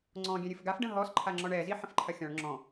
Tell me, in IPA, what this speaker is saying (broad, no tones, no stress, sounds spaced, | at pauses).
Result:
ŋ͡ǀ ɔ̃ ɡʲ ɛ̃ ɾʲ ɨ f ɡ a f ɖ ə̃ ɦ ɔ s ǃʰ a ŋ͡ǁ ɔ ɳ ɛ z i ħ ə̃ f ǃʰ ɐ xʲ ɔ̃ ɭ ŋ͡ǁ ɔ̃